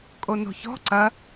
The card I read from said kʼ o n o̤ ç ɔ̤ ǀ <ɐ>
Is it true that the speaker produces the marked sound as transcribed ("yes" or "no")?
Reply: yes